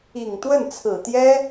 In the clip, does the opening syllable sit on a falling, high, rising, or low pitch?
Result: low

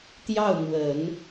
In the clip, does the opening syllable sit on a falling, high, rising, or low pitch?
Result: falling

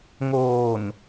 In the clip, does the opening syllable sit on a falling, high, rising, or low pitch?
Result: low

